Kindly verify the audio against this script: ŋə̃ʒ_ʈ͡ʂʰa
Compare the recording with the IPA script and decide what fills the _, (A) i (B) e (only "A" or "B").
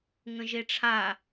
B